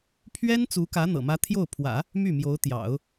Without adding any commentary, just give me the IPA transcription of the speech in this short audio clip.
pʰ ɥ ɛ˥ n t͡s u˧˥ k ä˧˥ n̪ ɤ̰˨˩ m ä˥ t̪ʰ j o˥˩ ʊ̯ pʰ w ä̰˨˩˦ | m y˥˩ m j o˧˥ ʊ̯ t̪ j ɑ̰˨˩˦ ʊ̯

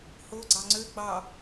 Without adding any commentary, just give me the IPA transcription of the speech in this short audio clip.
h o ɡ͡ǀ ɑ ŋ͡ǀ ø ɡ͡b ɑ

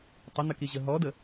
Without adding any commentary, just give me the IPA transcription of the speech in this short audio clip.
tˤ ə n̪ ə k i ʑ ə ɦ ɔ d ə

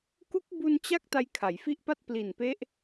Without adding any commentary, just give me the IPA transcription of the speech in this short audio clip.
k u˦˥ k̚ b u˧ n t͡ɕ a˦˥ k̚ t a˦˥ j kʰ a˩˦ j f i˥˩ ʔ p a˥˩ t̚ p l i˨˩ n p e˦˥ ʔ

